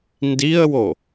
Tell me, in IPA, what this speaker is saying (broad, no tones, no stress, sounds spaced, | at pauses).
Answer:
n d i ə̯ w o